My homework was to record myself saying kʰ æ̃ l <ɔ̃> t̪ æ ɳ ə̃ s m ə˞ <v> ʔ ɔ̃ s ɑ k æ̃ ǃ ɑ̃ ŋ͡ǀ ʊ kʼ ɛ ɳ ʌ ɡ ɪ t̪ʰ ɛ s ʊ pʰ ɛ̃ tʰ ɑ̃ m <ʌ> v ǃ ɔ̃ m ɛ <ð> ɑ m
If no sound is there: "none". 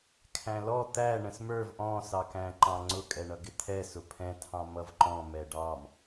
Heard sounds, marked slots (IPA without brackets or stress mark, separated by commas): ɔ, v, ʌ, ɖ